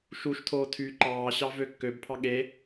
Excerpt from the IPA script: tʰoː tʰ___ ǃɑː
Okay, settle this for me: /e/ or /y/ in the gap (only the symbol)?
y